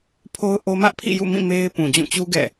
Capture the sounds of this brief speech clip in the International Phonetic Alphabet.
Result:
pʰ o˦ ʊ̯ ʔ o˦ m ä˦ ʔ pʰ ḭ˦˨ j ṵ˦˨ m ĩ˦˨ m e˦ ɪ̯ p ũ˨ d͡ʑ ũ˦˨ t͡ɕ u˦ ɡ ɛ̰˦˨

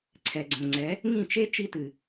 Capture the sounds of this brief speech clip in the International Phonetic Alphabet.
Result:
ǀʰ ɛ˨ ɡ͡ǀ õ˨ ŋ͡ǀ ɛ˨˦ | ŋ ĩ˦˨ t͡ʃ e˦ t͡ʃ i˦ t ɨ˨

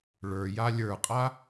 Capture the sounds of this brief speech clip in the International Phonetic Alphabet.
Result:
ɭ ə˞ j a lʲ ə˞ qʼ a

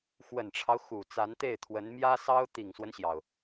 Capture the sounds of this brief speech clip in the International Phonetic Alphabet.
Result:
x w ə˨˩ n ʈ͡ʂʰ ɑ˦ ʊ̯ x u˨˩ t͡s a˧˥ n t̪ e˥˩ ɪ̯ t̪ʰ w ə˧˥ n m j ä˥ s ɑ˥ ʊ̯ t̪ i˨˩ ŋ s w ə˦ n ɕ j ɑ˩ ʊ̯

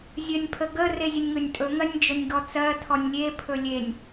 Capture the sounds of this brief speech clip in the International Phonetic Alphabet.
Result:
zʲ ɜ nʲ pʰ ə ɡ ə r e zʲ ə nʲ ŋ ɵ nʲ tʼ ɵ ŋ ɜ nʲ d͡ʒ ɵ nʲ ɡ ɔ t͡s ɜ tʰ ɔ nʲ lʲ e pʰ ɵ lʲ e nʲ

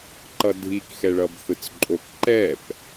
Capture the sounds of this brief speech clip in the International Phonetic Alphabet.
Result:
ǃ ʌ dʱ i k x ɛ ɭ ʌ b θ ɯ t͡s ǃʼ o k ǃ ɛ p

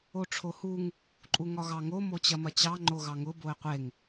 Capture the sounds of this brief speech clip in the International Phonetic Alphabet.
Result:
o ʈ͡ʂʰ o h u ŋ | ǃʼ u ŋ ɒ ɣ ɑ ŋ o m o t͡ɕ ɐ m ɐ t͡ɕ ɑ ŋ͡ǃ o ɣ ɑ ŋ ʊ b o ɪ̯ qʷ e ŋ

